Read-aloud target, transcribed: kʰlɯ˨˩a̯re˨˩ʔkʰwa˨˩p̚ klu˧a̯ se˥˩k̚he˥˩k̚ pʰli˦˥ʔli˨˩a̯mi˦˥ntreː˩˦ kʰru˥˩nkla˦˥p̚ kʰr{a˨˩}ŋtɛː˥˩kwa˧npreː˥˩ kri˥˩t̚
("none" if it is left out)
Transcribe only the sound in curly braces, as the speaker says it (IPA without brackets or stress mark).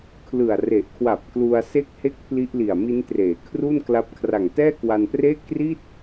a˨˩